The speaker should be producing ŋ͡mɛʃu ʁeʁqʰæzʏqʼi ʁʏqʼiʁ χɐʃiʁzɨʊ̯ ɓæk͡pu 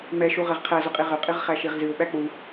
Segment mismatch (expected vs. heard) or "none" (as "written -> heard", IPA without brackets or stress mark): ɐ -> æ